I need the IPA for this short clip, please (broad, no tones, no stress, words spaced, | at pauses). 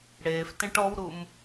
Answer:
ɽeːftẽʈ ɔwɾum